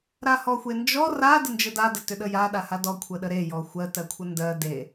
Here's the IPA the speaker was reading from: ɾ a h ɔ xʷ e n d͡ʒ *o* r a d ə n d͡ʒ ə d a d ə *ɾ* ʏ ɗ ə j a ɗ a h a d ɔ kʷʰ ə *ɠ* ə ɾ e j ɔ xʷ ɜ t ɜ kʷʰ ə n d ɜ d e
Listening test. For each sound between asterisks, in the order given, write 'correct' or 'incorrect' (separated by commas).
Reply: incorrect, incorrect, incorrect